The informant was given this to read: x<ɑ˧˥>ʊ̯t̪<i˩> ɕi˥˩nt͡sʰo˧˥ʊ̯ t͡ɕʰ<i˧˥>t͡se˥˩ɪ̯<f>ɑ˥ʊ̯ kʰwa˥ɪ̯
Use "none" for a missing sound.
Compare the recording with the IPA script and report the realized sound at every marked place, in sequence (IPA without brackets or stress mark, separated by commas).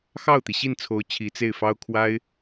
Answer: ɑ˥˩, i˩, i˧˥, f